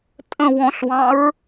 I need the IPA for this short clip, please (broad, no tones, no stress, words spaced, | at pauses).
tʼə̃ wɔ̃ɬwɑ̃ɹ